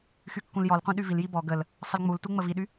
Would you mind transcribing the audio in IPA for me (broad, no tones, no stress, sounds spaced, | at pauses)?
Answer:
x y kː ũ l j ɔ l qʷ ĩ ɗ y v i l j i b ɔ ɡ ə l | sˤ ə l ŋ͡m u l t u ŋ͡m ə v i ɗ y